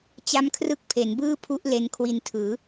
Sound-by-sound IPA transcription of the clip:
t͡ɕ a˦˥ m kʰ r ɯ˦˥ k̚ pʰ e˩˦ n b ɯː˥˩ pʰ u˦˥ ʔ l e˧ n kʰ w i˧ n tʰ ɯː˩˦

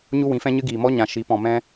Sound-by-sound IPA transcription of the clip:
ɲ u˦ w ĩ˨˦ f ɛ̃˦ ɲ ɨ˦ ɡ iː˨ m ɔ˦ ɲ ã˨ ʃ i˨˦ p ɔ̃˨ m ɛ̃˦

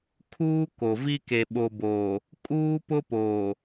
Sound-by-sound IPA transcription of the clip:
kʰ uː˦ k o˨ v i˦ k e˨ ɓ o˨ b oː˨ | kʼ uː˦ p ʊ˦ p oː˨

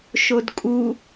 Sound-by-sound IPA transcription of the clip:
ʃ o d kʼ u

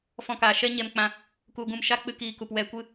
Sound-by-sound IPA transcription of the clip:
f ɔ̃˧ k aː˨ ʃ ɛ˦ ɲ ɛ˧ m k͡p ã˧ | k u˧ ɡ ũ˧ m ʃ a˦ k͡p ɨ˦ k iː˧ k u˨ p w ɛ˨ kʷ ɨ˧

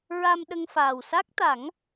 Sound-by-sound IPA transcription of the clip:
ɹ a˧ m ɗ ə˧ ŋ f aː˨˩ w s a˦˥ k̚ t̪ a˨˩˦ ŋ

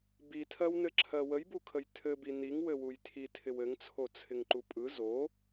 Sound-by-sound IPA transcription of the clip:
b i tʰ ɜ w n ɘ ǁʰ ɜ w ə j b u kʰ ə j tʰ ɘ b i n i ŋ w ɘ w u j tʰ i tʰ ɪ w ɘ ŋ t͡sʰ o t͡sʰ ɪ ŋ ǃ u pʼ ɯ z o

